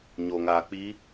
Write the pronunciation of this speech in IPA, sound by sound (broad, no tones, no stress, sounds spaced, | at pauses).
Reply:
ɲ o ŋ aː k͡p i